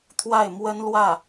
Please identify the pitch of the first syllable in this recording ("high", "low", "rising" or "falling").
falling